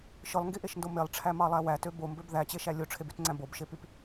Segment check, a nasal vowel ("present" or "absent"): present